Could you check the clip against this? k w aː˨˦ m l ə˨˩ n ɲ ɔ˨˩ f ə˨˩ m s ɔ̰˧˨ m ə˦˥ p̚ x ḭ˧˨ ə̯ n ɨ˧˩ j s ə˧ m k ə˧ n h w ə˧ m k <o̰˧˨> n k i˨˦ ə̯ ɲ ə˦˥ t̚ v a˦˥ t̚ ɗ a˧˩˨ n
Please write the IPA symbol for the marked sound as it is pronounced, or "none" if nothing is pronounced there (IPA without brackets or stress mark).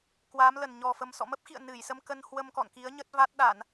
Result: ɔ̰˧˨